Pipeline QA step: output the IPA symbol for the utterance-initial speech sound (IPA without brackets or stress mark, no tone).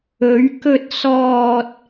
ɵ